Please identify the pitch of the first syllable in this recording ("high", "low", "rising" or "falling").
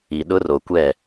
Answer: low